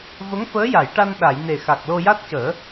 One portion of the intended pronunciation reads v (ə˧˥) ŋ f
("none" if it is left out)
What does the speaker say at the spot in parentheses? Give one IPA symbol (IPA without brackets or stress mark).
ə˧˥